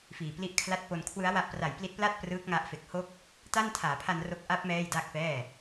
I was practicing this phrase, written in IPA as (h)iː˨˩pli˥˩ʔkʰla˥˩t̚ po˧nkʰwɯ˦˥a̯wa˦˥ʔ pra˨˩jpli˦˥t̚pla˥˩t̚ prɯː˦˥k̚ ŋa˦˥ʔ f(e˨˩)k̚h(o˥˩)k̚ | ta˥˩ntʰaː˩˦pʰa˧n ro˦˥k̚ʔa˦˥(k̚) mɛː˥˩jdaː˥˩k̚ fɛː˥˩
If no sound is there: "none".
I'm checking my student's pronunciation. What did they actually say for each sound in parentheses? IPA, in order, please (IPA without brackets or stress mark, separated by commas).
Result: f, e˨˩, o˥˩, p̚